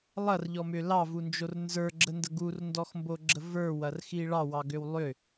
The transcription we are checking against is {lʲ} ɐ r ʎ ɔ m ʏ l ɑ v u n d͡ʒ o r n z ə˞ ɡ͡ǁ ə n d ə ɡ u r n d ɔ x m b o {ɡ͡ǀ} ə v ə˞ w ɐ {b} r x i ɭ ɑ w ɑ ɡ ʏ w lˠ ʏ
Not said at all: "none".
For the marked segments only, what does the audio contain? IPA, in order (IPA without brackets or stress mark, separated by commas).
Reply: lˠ, ɡ͡ǁ, none